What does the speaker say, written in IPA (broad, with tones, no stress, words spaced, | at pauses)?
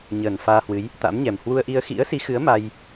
ɲəː˨˩nfaː˧hwɨ˨˦j | t̪a̰˧˥mɲɛ˨˩m hwu˧ə̯ʔi˧ə̯ xḭ˧˥ə̯si˨˦xɨ˨˦ə̯ ma˧j